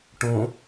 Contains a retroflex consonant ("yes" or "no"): yes